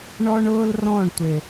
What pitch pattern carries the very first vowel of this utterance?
high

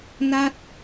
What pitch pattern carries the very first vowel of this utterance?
falling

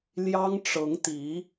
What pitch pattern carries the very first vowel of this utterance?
high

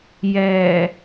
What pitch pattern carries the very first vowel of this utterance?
low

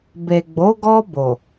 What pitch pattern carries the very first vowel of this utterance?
low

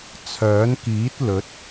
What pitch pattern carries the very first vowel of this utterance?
rising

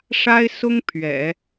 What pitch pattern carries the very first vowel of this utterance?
high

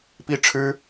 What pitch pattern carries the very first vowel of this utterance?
high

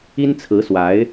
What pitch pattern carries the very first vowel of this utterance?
high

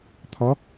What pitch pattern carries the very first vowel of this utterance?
rising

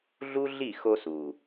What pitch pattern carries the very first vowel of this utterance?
high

